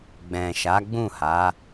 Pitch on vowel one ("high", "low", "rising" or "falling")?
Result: low